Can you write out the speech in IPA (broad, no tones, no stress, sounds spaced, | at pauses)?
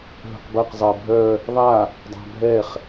ɦ ə̤ q b ɐ q zˤ ɜ bʱ œ | ðˤ a | dˤ a̤ bʱ ɛ χ